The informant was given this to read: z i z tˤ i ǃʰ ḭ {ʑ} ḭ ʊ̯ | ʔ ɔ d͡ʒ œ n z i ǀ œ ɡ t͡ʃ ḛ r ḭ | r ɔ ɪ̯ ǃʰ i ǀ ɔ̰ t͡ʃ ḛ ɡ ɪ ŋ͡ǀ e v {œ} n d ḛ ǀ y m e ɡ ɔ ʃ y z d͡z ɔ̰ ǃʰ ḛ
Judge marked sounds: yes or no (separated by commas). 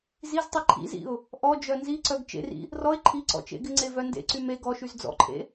no, yes